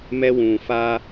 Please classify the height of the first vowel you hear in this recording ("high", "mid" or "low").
mid